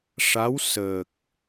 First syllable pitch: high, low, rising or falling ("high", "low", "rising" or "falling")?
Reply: rising